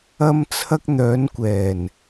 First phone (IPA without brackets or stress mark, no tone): ɐ